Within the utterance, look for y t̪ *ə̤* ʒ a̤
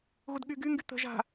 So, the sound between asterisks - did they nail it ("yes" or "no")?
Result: yes